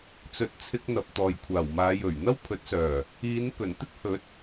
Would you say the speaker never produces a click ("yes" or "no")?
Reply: yes